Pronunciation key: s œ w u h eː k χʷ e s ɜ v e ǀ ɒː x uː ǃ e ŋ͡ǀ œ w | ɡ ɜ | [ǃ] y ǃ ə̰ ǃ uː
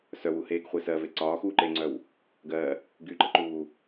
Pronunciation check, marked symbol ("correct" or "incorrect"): incorrect